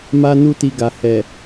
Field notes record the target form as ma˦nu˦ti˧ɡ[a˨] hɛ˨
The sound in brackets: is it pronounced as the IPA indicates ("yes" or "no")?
yes